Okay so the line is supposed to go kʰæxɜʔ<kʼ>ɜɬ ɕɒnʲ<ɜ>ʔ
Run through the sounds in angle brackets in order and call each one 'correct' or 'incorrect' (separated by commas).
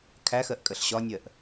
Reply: correct, correct